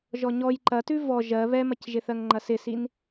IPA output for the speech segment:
ʒɔɲɔj ǃɐtʉ vɔ ʒɜ βɛmɐcʒɪθɜŋ ŋ͡ǃɐsɪsin

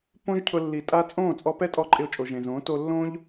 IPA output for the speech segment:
põ˦ʒcʰʊ˧lːi˨tʼa˦ t͡sʼõː˦˨t͡sʼɔ˧pɛ˦tʼɔ˧ ǃʼɪ˧o̯t͡ʃʼo˨ʒẽ˨zõː˨˦ to˧lːõ˦ʎ

